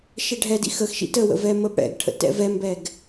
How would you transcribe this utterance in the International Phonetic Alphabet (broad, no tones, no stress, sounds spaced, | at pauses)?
ʃ ɛ ɖʱ ɛ d ḭ x ə x ʃ ḭ t ə w ə̰ v ɛ m ə b ɽ ɛ̰ ɡ ʈʰ ə̰ t ɛ̰ v ɛ m b ɛ ɡ